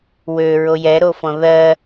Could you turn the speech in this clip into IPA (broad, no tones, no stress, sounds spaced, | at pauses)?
w ø ɹ o j ɛ ɾ o f ɔ̃ ð ɜ